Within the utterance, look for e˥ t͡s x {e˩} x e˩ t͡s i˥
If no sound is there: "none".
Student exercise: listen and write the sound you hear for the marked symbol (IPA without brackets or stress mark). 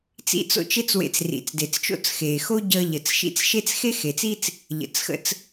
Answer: e˥